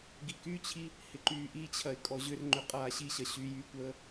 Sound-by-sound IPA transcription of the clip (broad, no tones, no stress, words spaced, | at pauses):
ɡikyt͡ɕʰi | hɪǃyːʔit͡ɕʰɐɪ̯ kʼɔʑʏrŋ͡ǃʏ qʼaːɕiɕɐ ɕy jykʷəː